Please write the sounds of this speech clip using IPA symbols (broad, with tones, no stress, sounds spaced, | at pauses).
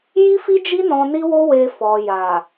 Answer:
j i˦ f i˦ d͡ʒ i˦ n ɔ̃˧ n i˦ w o˦ w e˧ f ɔ˨ j a˨